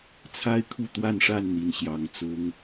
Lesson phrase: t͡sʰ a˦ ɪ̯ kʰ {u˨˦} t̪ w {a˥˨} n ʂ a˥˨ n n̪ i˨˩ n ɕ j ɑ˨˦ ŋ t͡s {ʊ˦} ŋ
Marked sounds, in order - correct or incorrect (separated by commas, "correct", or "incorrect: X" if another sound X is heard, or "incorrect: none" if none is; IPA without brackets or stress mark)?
incorrect: u˥˨, correct, correct